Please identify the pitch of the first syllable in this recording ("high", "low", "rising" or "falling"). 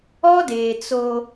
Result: high